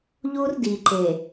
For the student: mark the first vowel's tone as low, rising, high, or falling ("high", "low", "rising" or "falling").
high